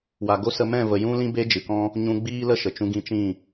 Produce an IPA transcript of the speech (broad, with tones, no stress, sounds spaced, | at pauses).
w a˨ ɡ o˦ s ə˧ m ɛ̃˦˨ v ə˨ j ũ˦ l ĩ˦ b e˦ d͡ʒ ɨ˨ k ɔ̃˦ | ɲ ũ˧ ɡ͡b iː˦ l ə˦ ʃ ə˨ t͡ʃ ũ˧ ɡ ĩ˧ t͡ʃ ĩ˦˨